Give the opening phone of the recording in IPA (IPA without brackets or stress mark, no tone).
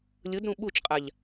lʲ